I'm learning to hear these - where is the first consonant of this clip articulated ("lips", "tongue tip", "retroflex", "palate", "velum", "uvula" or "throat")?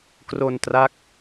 velum